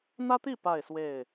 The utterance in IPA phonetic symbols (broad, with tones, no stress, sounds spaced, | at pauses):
n̪ ä˦ t̪ i˥˨ p a˥˨ ɪ̯ s w e˥˨ ɪ̯